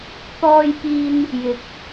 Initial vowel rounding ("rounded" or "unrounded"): rounded